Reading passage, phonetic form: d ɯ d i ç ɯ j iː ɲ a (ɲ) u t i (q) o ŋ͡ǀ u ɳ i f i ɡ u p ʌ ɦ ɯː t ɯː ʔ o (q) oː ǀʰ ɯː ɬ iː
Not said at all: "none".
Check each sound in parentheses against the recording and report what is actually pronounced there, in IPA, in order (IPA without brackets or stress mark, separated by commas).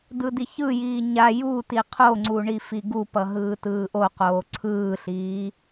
j, qʰ, q